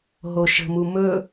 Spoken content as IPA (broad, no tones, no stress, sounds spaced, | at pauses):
ɦ o ʃ ə̤ m u m ɵ